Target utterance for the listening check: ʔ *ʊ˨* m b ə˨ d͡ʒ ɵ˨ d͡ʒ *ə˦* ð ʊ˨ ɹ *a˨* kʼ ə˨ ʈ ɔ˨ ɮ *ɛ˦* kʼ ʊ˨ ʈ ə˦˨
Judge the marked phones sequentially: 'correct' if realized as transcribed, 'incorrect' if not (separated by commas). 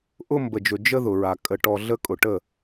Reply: incorrect, correct, correct, incorrect